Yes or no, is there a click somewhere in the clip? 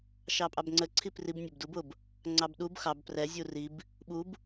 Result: yes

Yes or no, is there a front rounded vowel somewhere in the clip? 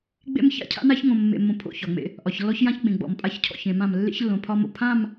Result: no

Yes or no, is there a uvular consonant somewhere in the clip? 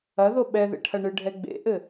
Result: no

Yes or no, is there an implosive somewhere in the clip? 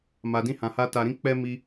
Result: no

